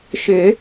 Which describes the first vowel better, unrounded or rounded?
rounded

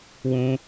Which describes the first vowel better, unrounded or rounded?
rounded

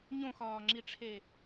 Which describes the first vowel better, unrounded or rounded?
rounded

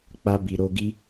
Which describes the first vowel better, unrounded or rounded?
unrounded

